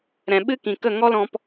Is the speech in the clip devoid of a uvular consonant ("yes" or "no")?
yes